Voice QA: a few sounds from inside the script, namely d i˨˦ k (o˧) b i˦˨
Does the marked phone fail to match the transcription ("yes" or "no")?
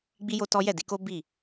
yes